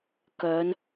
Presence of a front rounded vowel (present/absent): present